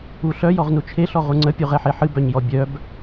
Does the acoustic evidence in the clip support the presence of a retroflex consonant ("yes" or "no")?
no